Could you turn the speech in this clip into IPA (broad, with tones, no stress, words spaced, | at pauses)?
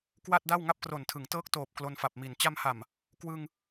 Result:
kwa˥˩t̚ da˥˩wŋa˥˩p̚kro˨˩ntʰɯ˩˦ŋ tɤː˦˥k̚ toː˨˩p̚ klo˧nfa˨˩p̚mi˨˩n t͡ɕa˧mha˨˩m | kwɯ˧ŋ